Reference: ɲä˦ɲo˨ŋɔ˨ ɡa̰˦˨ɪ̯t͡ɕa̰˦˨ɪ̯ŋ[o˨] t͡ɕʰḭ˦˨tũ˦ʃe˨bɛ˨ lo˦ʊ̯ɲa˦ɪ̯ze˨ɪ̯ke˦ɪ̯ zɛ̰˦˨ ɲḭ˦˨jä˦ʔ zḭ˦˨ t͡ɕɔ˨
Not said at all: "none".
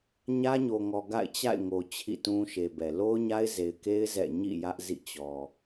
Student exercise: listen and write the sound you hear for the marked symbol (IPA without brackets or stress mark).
o˨